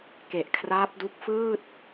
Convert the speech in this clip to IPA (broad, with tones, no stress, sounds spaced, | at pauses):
k e˨˩ ʔ kʰ r aː˦˥ p̚ d u˦˥ k̚ f ɯː˥˩ t̚